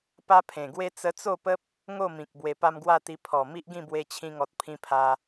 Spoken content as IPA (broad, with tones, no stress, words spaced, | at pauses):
pa˦pʰẽ˨˩ɡwe˦ t͡sə˧t͡so˥˧pə˦p̚ | ŋo˥˧mĩ˨k̚ bwe˧pa˦mɡwa˥˧t̪i˧ pʰɔ˨˩ mi˦ʔɡĩ˥˧ bwe˧ t͡ɕʰĩ˧ŋɔ˨t̚ pʰĩ˧pʰa˧